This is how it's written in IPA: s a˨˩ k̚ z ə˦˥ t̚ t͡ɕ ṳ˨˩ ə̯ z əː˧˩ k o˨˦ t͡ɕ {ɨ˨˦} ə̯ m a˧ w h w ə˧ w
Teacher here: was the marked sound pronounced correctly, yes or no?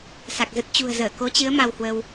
yes